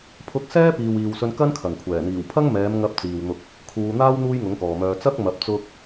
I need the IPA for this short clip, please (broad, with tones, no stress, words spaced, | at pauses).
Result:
pʰʊ˧k̚ sɛː˥piː˨wiː˨wsɵ˧n kɐ˥nkʰɐ˨˩ŋkʷʰɛː˨˩ n̪iː˨˩wpʰɐ˥ŋ mɛː˨˧mŋɐ˨˥p̚ t͡siː˨wn̪ʊ˧k̚ | kʰuː˧n̪aː˥w n̪uː˥jŋʊ˨˥ŋkɔː˨mœː˧ t͡sɐ˥k̚mɐ˨˥p̚ t͡sʊ˧k̚